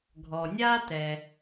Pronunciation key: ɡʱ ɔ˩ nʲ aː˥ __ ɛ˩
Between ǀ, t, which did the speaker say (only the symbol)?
t